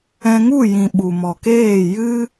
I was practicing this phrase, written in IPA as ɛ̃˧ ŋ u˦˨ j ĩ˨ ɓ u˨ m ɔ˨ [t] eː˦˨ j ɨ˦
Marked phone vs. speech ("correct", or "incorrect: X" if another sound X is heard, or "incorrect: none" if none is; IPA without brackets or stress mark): incorrect: k